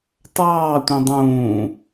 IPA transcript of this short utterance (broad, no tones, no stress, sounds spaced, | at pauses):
t ɑː tʷ ĩ dˤ ũː